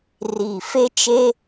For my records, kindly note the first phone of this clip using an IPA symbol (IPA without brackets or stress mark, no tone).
r